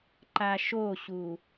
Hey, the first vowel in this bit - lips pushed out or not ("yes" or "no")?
no